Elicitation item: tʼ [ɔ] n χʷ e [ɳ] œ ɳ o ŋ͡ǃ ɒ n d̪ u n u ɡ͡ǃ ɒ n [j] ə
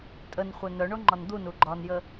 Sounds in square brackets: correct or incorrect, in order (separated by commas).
incorrect, incorrect, correct